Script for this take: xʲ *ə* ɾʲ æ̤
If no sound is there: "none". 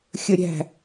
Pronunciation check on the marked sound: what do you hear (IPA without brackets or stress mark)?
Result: ə